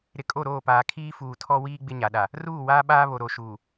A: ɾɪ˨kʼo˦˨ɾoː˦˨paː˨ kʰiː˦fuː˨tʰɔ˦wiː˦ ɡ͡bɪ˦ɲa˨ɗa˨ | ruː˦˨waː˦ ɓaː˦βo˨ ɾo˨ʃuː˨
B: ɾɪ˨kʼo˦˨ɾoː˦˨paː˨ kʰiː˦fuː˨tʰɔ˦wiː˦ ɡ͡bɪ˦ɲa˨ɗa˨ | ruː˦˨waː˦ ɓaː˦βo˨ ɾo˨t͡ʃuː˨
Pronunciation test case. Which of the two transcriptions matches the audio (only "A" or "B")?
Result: A